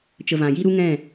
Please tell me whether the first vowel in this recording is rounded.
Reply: no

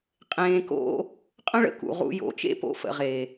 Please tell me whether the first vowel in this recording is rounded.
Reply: no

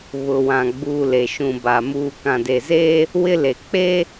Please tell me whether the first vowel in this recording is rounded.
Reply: yes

